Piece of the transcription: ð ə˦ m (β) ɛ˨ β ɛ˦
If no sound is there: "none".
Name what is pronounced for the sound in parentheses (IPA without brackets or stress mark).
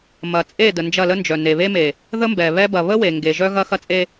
b